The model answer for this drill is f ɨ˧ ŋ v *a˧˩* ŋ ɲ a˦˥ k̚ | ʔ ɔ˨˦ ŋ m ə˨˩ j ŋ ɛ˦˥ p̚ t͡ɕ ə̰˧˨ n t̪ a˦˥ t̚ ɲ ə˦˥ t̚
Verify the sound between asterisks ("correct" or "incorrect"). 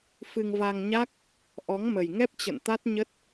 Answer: incorrect